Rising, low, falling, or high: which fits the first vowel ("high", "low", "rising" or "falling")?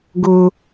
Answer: high